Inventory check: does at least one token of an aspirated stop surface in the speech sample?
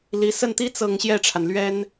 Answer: yes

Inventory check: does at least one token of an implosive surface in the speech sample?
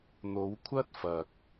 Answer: no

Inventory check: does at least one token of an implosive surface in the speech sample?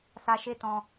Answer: no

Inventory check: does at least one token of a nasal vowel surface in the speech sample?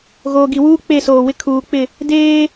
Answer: no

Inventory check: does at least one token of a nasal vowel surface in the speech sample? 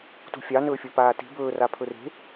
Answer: no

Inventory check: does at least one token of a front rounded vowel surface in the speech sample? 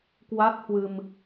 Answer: no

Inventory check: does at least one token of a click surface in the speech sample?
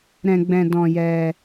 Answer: no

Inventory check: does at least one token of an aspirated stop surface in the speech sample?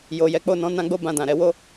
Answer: no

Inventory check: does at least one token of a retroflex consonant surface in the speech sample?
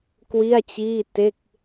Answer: no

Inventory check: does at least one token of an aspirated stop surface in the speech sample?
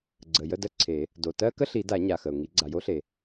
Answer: yes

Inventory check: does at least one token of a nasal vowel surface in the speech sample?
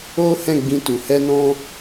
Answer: yes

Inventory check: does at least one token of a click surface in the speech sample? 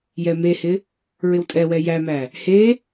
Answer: no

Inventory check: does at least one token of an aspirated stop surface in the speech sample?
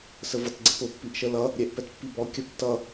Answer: no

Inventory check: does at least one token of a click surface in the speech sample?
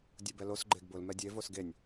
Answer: yes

